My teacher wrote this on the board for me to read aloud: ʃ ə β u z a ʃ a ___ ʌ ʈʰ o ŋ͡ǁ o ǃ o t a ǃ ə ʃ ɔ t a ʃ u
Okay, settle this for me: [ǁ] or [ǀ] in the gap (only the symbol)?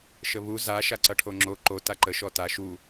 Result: ǀ